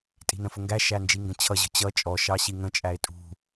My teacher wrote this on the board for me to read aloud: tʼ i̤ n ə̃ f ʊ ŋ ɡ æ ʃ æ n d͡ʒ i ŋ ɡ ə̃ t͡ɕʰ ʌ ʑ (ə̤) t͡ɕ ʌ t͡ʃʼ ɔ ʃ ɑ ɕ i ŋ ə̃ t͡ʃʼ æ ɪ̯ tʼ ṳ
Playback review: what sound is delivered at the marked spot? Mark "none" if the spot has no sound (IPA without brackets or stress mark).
ə̤